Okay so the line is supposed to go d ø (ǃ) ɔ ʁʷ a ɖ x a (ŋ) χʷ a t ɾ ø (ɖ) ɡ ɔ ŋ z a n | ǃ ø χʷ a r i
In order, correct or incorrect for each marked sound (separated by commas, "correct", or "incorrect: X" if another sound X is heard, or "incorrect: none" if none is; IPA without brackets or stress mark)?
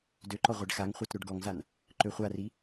correct, correct, correct